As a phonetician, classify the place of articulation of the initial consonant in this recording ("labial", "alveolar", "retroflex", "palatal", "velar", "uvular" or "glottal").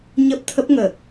palatal